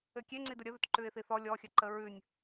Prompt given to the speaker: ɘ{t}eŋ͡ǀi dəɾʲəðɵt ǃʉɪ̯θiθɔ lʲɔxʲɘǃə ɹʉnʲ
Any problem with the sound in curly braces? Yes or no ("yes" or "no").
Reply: yes